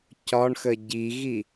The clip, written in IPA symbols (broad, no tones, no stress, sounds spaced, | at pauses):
c ɒ ɳ x ə ɟ i ɣ i